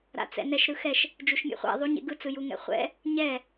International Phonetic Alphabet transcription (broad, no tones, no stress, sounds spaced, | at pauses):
ɾ a̰ t͡s ɛ̰ n ɛ ʃ ɾ ɯ x ɛ ʃ | d͡ʒ u ʃ mʲ ḛ χʷ ɛ̰ ðˤ u ɲ ḛ ɡ ɯ t͡s ɯ j u ŋ ɛ̰ χʷ ɛ̰ | ɲ ɛ